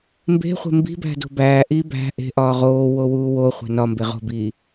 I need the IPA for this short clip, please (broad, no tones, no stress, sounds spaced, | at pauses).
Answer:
m b e̤ χʷ e̤ m b i̤ b æ̤ d o̤ b æː ʔ iː b æ̤ ʔ e̤ ʔ ɒː ʁ oː w o w uː w o χʷ æ̤ n ɒ m b e ʁ o̤ b iː